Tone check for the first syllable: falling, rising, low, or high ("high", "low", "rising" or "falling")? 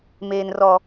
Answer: high